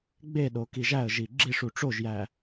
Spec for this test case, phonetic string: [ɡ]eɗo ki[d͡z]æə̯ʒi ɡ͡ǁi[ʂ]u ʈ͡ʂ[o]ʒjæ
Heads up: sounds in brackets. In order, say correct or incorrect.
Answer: incorrect: ɡ͡b, incorrect: ʒ, correct, correct

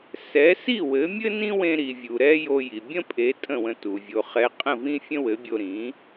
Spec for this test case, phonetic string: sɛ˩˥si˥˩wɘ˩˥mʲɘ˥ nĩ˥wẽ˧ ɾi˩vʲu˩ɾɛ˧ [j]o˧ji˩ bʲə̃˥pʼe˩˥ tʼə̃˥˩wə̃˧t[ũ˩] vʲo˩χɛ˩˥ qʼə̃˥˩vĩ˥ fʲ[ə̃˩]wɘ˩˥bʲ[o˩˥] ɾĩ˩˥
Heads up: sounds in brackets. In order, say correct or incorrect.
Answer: correct, incorrect: u˩, incorrect: ə̃˥, incorrect: o˧

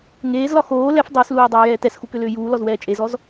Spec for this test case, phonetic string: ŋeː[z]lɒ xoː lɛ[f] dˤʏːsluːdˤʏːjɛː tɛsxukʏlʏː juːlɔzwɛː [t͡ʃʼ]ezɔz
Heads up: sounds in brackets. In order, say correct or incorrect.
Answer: correct, correct, correct

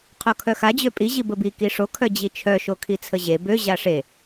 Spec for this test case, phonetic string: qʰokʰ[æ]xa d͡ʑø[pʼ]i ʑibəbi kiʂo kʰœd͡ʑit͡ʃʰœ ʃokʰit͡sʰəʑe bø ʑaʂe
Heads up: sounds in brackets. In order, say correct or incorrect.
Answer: incorrect: œ, correct

